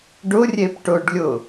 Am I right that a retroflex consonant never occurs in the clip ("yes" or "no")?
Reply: no